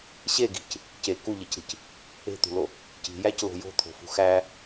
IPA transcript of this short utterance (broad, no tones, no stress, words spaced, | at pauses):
ɕeɡi̤c | ce kuʎecɾi̤c | e̤t̪ṳlo | ci̤jæclo̤ jo̤t̪ʰo̤fṳ xæ